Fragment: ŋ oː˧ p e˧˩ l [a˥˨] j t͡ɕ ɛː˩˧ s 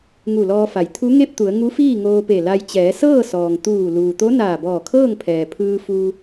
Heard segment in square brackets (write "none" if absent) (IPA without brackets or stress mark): a˧